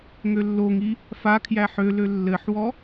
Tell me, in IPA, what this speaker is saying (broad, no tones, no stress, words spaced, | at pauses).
ŋølːoŋi | fakʰjæ ħølø lːɘħwɔ